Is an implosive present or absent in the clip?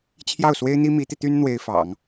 absent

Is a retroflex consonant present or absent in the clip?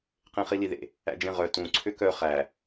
absent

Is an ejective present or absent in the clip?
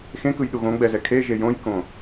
absent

